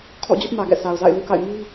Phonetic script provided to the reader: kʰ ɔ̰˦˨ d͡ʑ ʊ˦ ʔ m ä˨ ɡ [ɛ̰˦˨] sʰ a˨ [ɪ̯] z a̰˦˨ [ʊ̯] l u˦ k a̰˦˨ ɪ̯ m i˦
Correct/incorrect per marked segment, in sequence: correct, incorrect: ʊ̯, incorrect: ɪ̯

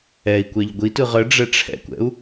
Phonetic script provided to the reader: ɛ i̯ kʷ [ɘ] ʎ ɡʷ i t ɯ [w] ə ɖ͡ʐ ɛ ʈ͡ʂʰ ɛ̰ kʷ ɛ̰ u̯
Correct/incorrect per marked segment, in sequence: incorrect: ɛ, incorrect: ʁ

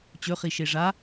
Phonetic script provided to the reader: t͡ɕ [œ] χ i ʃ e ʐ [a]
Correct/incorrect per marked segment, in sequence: incorrect: ɵ, correct

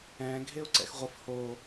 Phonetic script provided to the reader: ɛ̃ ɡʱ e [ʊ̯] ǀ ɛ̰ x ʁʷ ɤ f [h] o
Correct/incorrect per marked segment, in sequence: correct, correct

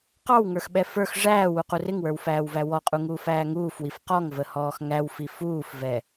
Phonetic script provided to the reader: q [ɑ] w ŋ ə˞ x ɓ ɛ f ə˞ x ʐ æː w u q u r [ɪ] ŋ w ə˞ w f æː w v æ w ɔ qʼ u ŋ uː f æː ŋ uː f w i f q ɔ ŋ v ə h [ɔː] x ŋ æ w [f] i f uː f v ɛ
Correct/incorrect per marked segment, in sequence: correct, correct, correct, correct

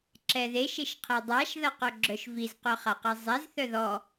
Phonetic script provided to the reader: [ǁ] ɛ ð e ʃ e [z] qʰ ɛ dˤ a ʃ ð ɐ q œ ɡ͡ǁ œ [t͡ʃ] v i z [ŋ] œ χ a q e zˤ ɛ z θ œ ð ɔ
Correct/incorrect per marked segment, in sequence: correct, incorrect: ʃ, incorrect: ʃ, incorrect: q

